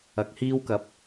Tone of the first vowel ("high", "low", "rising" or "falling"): low